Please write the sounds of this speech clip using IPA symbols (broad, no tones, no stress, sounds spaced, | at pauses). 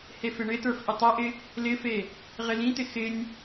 h e f ɪ ɳ ɪ t ə˞ f ʔ ɪ tˤ ɘ ʔ ɪ | l ɪ f e | ʁ ɪ l ĩ t̪ ɪ x ɪ nʲ